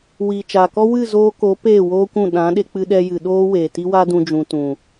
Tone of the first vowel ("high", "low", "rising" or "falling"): low